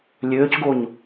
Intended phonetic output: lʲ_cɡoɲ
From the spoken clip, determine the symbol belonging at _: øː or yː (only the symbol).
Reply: øː